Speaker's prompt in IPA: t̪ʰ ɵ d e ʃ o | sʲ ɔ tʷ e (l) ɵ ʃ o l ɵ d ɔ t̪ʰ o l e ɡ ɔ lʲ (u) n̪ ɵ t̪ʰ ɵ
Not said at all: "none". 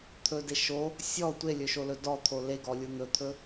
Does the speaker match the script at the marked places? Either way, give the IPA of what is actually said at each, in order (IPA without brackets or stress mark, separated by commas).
lʲ, u